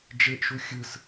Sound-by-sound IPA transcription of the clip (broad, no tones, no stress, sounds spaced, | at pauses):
d͡ʒ e ʔ ʃ u xʲ ɯ s